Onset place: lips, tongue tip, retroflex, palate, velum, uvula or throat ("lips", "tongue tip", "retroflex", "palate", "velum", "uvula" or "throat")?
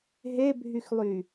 throat